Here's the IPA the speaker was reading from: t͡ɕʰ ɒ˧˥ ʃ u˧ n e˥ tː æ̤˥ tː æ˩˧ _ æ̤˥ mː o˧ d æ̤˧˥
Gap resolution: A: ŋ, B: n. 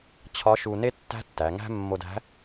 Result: A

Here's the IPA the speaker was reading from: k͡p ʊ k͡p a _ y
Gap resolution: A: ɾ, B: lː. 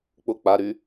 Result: A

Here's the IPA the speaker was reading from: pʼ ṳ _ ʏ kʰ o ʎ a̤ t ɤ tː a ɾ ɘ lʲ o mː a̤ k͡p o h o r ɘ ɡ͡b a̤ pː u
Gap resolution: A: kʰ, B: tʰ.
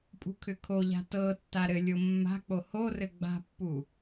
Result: A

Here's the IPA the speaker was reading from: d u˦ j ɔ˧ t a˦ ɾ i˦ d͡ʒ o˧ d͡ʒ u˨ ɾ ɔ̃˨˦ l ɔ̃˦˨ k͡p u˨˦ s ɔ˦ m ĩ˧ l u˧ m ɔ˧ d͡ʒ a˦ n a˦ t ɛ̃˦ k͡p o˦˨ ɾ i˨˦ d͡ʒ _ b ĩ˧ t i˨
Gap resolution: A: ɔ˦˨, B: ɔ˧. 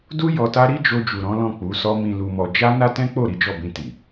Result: A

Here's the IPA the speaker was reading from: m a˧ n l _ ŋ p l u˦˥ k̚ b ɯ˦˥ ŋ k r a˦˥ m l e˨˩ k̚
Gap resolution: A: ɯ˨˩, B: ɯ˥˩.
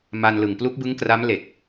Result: A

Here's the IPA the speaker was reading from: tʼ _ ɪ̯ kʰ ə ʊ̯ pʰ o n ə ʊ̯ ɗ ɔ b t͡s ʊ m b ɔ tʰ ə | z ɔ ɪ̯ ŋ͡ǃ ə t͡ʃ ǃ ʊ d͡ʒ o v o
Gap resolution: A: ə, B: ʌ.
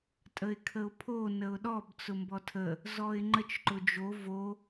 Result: A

